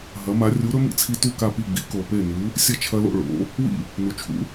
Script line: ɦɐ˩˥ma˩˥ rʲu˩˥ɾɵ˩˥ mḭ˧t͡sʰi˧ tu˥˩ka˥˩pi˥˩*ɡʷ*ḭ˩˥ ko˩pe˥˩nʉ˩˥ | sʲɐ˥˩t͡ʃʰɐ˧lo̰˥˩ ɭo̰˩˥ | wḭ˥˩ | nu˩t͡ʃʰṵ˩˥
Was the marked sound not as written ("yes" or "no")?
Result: yes